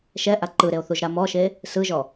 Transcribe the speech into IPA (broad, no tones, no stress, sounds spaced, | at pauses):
ʃ ɛ ʔ a ǃ ɯ ɾ e o̯ θ u ʒ ɾ a m ɔ ʃ e | s ɯ ʒ ɔ